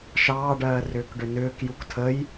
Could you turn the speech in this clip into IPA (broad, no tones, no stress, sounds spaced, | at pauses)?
ʃ ɑː ɖ ɜː r ʏː k ɖ ʏ n ʏː k j u k tʰ ə j